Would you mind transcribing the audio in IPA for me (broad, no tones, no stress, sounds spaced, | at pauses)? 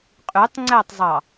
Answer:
qʼ y tˤ ŋ͡ǀ æ tˤ zˤ ɑ